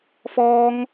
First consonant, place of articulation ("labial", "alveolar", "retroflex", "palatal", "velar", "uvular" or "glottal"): labial